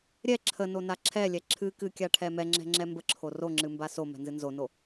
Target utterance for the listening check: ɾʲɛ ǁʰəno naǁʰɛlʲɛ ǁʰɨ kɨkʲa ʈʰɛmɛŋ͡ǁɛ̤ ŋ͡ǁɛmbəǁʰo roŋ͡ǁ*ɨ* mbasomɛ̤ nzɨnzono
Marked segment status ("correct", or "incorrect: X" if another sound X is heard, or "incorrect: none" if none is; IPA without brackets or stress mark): correct